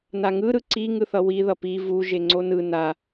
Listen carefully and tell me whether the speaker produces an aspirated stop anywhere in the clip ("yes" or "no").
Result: no